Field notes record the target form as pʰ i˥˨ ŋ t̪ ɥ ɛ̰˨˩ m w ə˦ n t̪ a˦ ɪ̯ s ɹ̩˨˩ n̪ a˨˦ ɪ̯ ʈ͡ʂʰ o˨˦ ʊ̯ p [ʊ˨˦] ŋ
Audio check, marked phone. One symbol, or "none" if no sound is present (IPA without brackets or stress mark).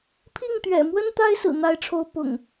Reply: ʊ̰˨˩